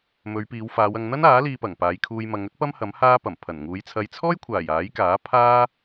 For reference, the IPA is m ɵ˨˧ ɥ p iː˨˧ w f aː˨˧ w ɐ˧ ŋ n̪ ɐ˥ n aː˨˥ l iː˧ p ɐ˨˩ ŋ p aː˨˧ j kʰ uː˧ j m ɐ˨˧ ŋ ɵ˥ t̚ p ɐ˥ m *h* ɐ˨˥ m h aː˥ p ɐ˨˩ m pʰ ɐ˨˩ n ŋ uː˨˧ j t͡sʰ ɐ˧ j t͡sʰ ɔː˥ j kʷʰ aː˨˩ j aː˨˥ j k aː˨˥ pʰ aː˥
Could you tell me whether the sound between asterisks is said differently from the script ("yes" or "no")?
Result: no